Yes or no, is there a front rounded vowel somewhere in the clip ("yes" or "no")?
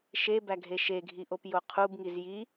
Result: no